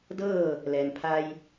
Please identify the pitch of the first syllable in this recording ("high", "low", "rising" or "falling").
falling